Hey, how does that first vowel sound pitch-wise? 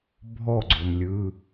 falling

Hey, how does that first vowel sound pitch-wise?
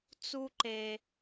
high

